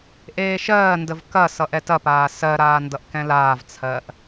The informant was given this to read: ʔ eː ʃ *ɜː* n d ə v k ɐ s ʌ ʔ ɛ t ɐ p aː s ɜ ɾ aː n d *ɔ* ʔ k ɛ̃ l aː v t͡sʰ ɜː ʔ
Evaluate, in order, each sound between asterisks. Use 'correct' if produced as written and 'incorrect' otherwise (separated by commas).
correct, incorrect